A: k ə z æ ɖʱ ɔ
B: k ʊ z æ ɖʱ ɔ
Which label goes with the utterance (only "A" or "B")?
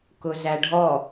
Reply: B